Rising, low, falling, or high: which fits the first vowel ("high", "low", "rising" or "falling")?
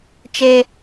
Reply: high